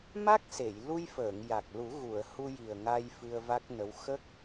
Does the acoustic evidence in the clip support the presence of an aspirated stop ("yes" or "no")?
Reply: no